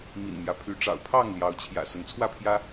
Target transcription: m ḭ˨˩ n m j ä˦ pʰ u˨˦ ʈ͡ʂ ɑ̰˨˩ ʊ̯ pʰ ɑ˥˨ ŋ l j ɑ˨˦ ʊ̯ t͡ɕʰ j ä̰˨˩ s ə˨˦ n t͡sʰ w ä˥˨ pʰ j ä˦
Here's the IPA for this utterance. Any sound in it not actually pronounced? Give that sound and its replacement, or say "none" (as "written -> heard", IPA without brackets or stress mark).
u˨˦ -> y˨˦